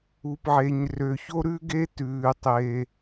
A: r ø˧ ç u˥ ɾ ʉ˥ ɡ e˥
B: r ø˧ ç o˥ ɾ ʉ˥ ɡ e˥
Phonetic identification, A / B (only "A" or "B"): B